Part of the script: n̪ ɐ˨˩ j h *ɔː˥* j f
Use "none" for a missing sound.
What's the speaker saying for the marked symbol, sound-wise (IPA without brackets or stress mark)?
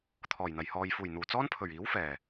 ɔː˨